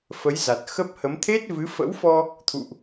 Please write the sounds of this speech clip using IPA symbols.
f ə˨˦ j z a˨˩ t̚ x ə˦˥ p̚ h ə˨˦ m t̪ʰ e˦˥ t̚ v ɨ˨˦ f ə̰˧˥ w f ɔ˧ | t̪ʰ ṵ˧˨ ʔ

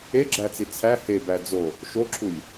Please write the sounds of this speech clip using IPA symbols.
e ɡ͡ǁ æ t͡s i t͡sʰ æ h e b æ d͡z o | ʃ o ǁʰ u lʲ

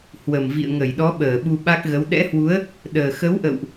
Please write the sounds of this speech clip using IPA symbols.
h w ə˨˩ m v ḭ˧˨ ə̯ ŋ ə˧˩ j ɗ ɔ˨˦ ɓ əː˧˩ ɓ u˧ ɓ a˦˥ k̚ ɣ ə˨˦ w ɗ ɛ̰˧˥ h w u˨˦ ə̯ | ɗ əː˨˩ x ə˨˦ w ʔ ə̰˧˨ w ʔ

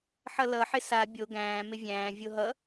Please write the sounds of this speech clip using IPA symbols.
ħ ʌ l ʌ ħ ɪ s a bʲ o ɡ æ̃ː m ɪ vʲ æ̃ː vʲ o ɦ ʌ

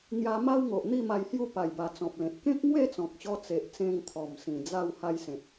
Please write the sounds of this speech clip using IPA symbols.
ŋ j a˧ m a˦ w ŋ o˨ ʔ n̪ i˥˧ m a˧ j h j u˥˧ p a˨˩ j b a˨˩ t͡s ɔ̃˨ p̚ l ẽ˨ t̚ k ẽ˦ k̚ ŋ w e˥˧ t͡s ɔ̃˨ k̚ ɕ ɔ˧ t͡s e˨ ʔ t͡s ẽ˧ ŋ t̪ʰ ɔ˨˩ m s ĩ˨˩ d͡z a˥˧ w h a˦ j s ẽ˨ t̚

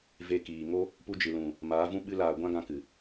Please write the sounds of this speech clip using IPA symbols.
v e˧ k iː˨ ŋ o˦ | p u˧ d͡ʒ ɨ˨ l ũ˨ | m aː˨˦ v ũ˦ ɓ ɨ˧ l aː˨ ɡʷ ã˦ ɡ ã˧ k ɨ˨

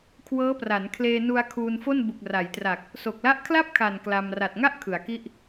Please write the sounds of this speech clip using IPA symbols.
kʰ w ɤː˦˥ p r a˩˦ n kʰ l eː˧ n u˧ a̯ kʰ uː˧ n f o˥˩ n b u˨˩ k̚ r a˩˦ j t r a˨˩ k̚ | s o˨˩ k̚ l a˦˥ ʔ kʰ l a˥˩ p̚ kʰ a˨˩ n k l a˧ m r a˨˩ t̚ ŋ a˥˩ ʔ kʰ ɯ˩˦ a̯ k i˥˩ ʔ

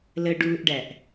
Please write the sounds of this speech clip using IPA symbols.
l ə ɖ uː ʔ ɖ æ ʔ

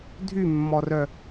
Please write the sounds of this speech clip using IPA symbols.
dʱ y mː ɔ r œ

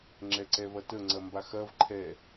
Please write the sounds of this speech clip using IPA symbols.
ŋ͡ǁ ɛ ǀ ɛ v ɐ t ə ŋ͡ǀ ɐ m b a x ɐ v ǃʰ ɛ

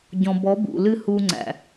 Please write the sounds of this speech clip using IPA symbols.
ɟ ɔ̃˨ b ɔ˨˦ b ṵ˨ l ɨ˦ h u˧ ŋ͡ǀ æ̰˨

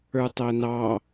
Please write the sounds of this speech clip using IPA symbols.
ə˞ tˤ æ n ɑ

